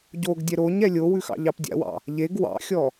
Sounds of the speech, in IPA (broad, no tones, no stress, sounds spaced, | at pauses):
ɟ o ɡ dʲ ɛ ɾ o ɲ ɛ lʲ o w ʉ x ɑ̰ ʎ ɑ p dʲ a̰ w ɑ̰ | ʎ e ɡ w ɑ̰ xʲ ɔ